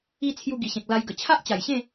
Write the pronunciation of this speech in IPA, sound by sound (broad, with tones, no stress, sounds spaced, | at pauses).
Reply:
i˧ t͡sʰ j u˧ ɡ i˨˩ ɕ ẽ˨ k̚ l a˧ j ɡ ə˨˩ t͡ɕʰ a˦ ʔ t͡ɕ a˨˩ j ɕ ẽ˥˧